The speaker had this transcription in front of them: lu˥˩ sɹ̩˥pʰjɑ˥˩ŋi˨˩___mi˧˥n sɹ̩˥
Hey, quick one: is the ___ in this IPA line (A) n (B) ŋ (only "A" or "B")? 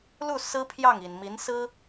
A